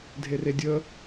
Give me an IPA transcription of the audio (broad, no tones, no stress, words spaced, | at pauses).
dʱeredʲə